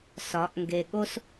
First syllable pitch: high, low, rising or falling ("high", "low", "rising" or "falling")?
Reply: rising